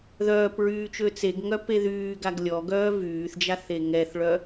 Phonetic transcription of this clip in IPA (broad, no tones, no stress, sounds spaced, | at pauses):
ð œː p ɹ yː t͡ʃ ø t͡s e ɡ ŋ œ p e ð yː ɡ a ɡ lʲ ɔ ɡ œː v yː θ d͡ʒ a θ e ŋ ɛ θ ɭ œ